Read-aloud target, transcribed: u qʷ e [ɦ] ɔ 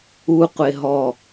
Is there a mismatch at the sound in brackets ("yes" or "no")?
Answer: no